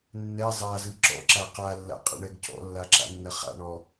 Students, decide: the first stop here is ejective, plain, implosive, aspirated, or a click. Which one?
click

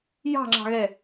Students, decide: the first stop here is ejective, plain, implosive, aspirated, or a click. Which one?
click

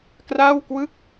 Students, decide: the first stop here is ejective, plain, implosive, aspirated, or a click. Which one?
plain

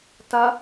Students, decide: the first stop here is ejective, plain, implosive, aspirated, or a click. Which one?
plain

